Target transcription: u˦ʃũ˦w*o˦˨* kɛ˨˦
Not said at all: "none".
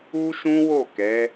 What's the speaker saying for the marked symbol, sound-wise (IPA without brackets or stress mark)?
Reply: o˦˨